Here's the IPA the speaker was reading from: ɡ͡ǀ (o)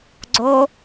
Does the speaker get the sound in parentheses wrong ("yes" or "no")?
no